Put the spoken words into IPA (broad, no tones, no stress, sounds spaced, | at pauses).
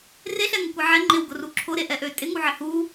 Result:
r e ɬ ɛ ŋ ə kʷ e ʕ ɛ ŋ͡ǃ ɪ w ɡ ʊ r u ǁʰ ʊ ɾ e ʔ ɛ ʔ ø tʼ ɪ ŋ u ʕ ɪ h u